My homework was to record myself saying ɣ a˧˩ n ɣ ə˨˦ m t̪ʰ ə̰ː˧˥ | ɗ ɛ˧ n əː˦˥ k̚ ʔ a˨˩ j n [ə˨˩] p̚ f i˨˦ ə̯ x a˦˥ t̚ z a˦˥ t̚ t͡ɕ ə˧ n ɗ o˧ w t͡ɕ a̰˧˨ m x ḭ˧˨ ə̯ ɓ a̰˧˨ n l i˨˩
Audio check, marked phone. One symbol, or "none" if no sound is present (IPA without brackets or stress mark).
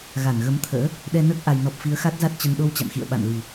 ɔ˨˩